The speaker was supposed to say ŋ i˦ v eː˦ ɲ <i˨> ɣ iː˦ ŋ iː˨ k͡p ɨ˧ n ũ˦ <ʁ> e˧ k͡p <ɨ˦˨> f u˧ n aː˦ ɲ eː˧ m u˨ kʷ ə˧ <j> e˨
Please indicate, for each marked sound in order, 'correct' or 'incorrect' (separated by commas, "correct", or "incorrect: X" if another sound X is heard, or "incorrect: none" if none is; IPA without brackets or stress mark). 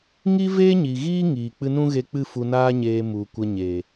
correct, incorrect: ɣ, correct, incorrect: ɲ